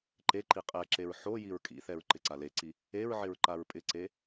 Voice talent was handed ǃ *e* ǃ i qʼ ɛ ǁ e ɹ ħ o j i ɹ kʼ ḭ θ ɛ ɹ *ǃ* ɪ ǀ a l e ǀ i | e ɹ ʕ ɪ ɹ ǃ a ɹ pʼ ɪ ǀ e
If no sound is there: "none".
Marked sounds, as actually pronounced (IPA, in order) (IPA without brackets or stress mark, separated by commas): e, ǃ